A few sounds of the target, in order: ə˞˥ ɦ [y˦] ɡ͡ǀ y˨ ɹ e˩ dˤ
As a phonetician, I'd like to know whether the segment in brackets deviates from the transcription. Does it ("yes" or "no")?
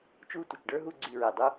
yes